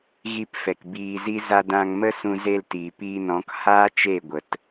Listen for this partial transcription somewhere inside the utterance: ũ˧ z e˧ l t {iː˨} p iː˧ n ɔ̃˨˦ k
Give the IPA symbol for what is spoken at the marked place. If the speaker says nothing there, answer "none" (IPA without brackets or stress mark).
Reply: iː˨